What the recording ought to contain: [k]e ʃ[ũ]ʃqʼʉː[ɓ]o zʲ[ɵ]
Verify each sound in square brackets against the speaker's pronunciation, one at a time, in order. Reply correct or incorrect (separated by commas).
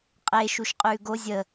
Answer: incorrect, incorrect, incorrect, incorrect